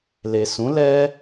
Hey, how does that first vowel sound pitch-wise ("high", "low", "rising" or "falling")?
low